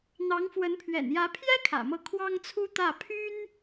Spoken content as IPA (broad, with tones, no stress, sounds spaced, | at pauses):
n̪ ɑ˧˥ ŋ f w ə˧˥ n pʰ ɥ ɛ̰˨˩ n j ä˧˥ pʰ j ɛ˥ kʰ ä̰˨˩ m ɤ˥˩ kʰ w ɑ˥ ŋ t͡sʰ u˥ t̪ ä˥˩ pʰ y˥ n